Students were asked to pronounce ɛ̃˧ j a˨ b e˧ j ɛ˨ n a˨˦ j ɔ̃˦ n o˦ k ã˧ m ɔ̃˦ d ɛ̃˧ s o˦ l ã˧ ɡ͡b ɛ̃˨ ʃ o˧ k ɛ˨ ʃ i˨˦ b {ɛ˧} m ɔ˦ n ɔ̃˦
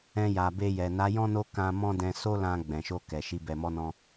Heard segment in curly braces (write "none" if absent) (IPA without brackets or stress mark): ɛ˧